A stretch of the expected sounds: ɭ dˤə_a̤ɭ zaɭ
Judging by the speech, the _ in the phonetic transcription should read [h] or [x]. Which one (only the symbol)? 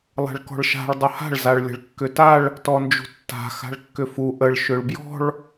h